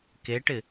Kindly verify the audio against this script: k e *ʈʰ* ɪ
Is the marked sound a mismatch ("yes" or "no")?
yes